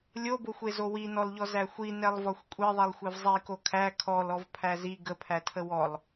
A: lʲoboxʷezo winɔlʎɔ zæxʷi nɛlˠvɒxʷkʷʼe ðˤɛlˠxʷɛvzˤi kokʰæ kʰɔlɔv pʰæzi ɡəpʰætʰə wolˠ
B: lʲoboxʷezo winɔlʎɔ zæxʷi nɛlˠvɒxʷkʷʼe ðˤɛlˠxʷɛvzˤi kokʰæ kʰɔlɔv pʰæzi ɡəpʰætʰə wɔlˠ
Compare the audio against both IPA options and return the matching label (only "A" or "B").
B